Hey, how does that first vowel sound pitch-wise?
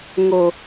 low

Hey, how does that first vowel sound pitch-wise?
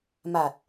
low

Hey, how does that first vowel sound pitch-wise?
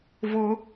high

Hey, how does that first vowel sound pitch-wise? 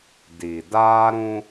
low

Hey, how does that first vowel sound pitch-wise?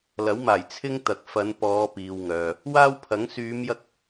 rising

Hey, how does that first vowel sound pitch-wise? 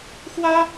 high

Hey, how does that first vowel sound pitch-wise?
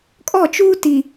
falling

